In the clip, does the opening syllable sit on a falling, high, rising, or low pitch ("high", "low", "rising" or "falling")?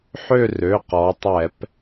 falling